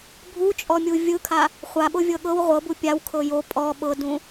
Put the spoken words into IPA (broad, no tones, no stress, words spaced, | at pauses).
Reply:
bʱut͡ʃʼɔmʲu vʲɯkʰa | χʷaɓovʲɤ ɠɤw ʁʷɤbu pʲawkʰɤ jo pʼɔ ɓɤdũ